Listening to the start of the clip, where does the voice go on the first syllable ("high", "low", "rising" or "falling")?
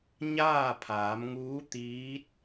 falling